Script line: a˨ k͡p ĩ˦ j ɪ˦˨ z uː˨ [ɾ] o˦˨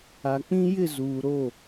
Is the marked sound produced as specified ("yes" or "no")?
yes